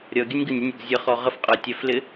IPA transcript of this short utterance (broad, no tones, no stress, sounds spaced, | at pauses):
ɾʲ ʌ ɡʲ ə nʲ ɡ ə nʲ ɪ nʲ ʊ ɡ zʲ ə χ ɔ ʁ ə f qʼ ə j tʲ æ f l ɪ